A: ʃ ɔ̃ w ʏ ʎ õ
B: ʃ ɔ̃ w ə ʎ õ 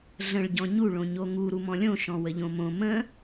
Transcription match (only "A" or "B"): B